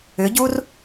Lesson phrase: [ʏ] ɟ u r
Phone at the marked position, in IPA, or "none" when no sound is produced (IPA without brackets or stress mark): ʏ